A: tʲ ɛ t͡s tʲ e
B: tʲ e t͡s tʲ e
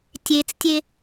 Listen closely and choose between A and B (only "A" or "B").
B